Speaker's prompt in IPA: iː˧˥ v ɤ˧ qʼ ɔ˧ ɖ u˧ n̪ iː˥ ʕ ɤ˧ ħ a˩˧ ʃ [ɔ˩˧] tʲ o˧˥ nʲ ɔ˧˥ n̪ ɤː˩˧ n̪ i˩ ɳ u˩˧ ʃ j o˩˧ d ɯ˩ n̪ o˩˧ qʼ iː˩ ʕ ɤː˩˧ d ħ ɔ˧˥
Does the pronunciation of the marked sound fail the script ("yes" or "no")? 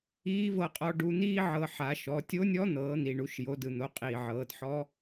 no